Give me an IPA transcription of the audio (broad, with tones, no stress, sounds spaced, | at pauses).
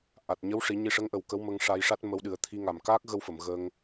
ʔ a˨˩ t̚ ɲ ə˧˥ w ʂ i˨˩˦ ɲ i˧ ʂ ə˧˥ ŋ ʔ ə˨˩ w k ə˧˥ w m ə˧ ŋ ʂ a˧ j ʂ a˦˥ t̚ m ə˧˥ w ɗ ɨ˨˩˦ ə̯ t̪ʰ i˧ ŋ a˨˩ m k aː˦˥ k̚ ɣ ə˧ w f ə˨˩˨ m ɣ ə˧ ŋ